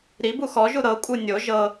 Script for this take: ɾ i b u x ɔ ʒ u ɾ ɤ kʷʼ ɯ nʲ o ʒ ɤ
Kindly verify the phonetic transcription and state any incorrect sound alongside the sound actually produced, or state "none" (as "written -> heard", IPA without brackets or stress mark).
none